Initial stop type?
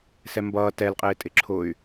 plain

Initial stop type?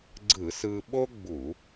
click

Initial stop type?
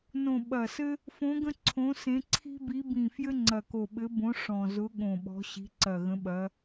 implosive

